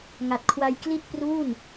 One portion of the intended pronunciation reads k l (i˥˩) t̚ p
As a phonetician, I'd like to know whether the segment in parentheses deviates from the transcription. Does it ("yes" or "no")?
no